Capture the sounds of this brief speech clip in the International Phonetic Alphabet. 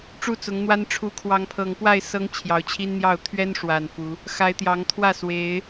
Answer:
ʈ͡ʂ u˥˨ t͡s ʊ˨˦ ŋ n̪ w a˦ n ʈ͡ʂʰ u˨˦ kʰ w ɑ˨˦ ŋ pʰ ɤ˨˩ ŋ p w a˥˨ ɪ̯ s ɤ˦ ŋ t͡ɕʰ j ɑ˨˦ ʊ̯ t͡ɕʰ i˦ n n̪ j ɑ˥˨ ʊ̯ t̪ʰ ɥ ɛ˦ n ʂ w a˨˩ n f u˨˦ | x a˨˦ ɪ̯ t̪ j ɑ˨˦ ŋ t̪ʰ w ä˥˨ s w e˨˦ ɪ̯

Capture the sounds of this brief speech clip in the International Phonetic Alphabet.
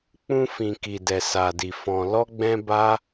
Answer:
k͡p ũ˧ f ĩ˨ k i˨ d ɛ˨ s a˨ d i˨ f ɔ̃˨ l ɔ˧ ɡ͡b ɛ̃˧ b a˦

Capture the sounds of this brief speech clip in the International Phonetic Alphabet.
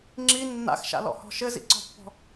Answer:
ŋ͡ǁ i nː a̰ x ʃ a̰ l ɔ̰ h ɔ̤ ʃ ɘ z ḭ ǀ ɔ̤ pː ɔ̤

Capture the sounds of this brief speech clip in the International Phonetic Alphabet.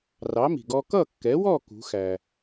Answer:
r ɑ˩˥ m i̤˩ ɡ ɔ˧ k ʌ˥˩ kː ɛ˩˥ w ɔ˥˩ k ṳ˩˥ x æ˩

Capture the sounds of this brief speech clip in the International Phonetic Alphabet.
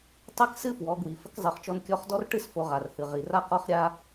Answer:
tˤ ɛ˥ k s ɨ˥ f w ɔ˩˧ ɡ w i˩ f ə˧˥ k zˤ ɨ˩˧ χ t͡ʃ ɔ˧ n kʲ ɔ˧˥ χ d ɔ˥ r ʈ ɨ˥ s f o˧ ʁ a˩ r h ɨ˩ ʁ i˩ r a˥ q ɔ˥ χ ɾʲ a˥

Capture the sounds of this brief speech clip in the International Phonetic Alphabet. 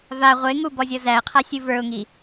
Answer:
v a ʁʷ e ŋ u b ɔ zʲ ɔ z æ ə̯ qʰ a sʲ u v ə˞ ʊ̯ ŋ i

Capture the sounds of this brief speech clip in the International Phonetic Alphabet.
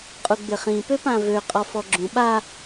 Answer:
qʼ u ɡ͡b ɪ χ ĩ p ø p ã v ø qʼ ɔ f ɔ ɡ͡ǁ ũ ɓ a

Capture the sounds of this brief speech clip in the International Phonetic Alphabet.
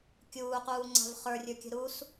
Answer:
kʲ uː q uː ŋ͡ǀ a̤ v χ ə˞ rʲ ə˞ kʲ ə̤ ɾ u s

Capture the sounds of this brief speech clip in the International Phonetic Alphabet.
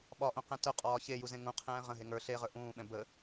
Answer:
ɓ ɒ ʔ õ q ɛ̃ t œ qʼ ɒː ç e j u z ẽ ŋ ũ qʰ ɛ̃ː ʁ ə̃ ɦ e ŋ ə˞ ɬ e ʁ ə˞ ʔ ũː ɓ ɛ̃ b ə

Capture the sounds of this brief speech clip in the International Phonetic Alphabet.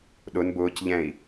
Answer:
ɗ ʊ n b ʊː c ʎ ɛ̃ i̯

